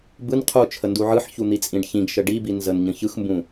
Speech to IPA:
b ɯ n qʰ u t͡ʃʰ ə n d u ʕ ɯ ħ ç u n̪ i t͡sʼ ĩ ɖ ç ĩ ɡ ʃ ə ɖ i b i n z ə n ɲ ə̃ ç ɯ x m b ũ

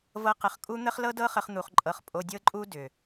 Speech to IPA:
v ɤ˦ q ə˧ χ kʼ u˦ n̪ ə˦ χ l ɤ˦ d ɤ˦ χ ə˦ χ n̪ u˧ χ ǃʼ ɤ˧ χ pʼ o˧ dʲ ɤ˦ ǃʼ u˦ d ʏ˨

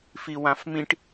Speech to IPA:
f i w ã f m ĩ ʈ

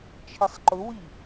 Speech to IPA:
t͡ʃʰ ɪ sˤ ǃ ʊ w i

